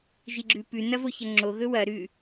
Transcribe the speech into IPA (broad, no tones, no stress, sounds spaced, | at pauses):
ʒ i ɡ͡ǁ ʉ p ʉ n ɐ v o ç ɐ ŋ͡ǁ o ɣ ɵ w ɐ ɾ ʉ